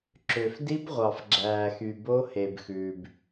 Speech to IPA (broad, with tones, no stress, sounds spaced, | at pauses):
ǁ ø˨ f d i˦˥ b ʁʷ ɑ˨ f ɡ͡ǁ æː˨ x y˨ b o˦˥ h e˨ b x ʉː˨ b